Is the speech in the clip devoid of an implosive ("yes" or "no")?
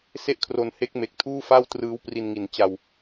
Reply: yes